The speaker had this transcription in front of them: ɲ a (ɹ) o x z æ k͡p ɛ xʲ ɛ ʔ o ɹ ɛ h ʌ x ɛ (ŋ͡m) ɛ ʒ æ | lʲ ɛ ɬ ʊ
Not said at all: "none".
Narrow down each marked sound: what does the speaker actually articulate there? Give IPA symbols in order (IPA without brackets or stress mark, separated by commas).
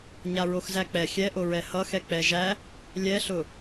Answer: ɹ, k͡p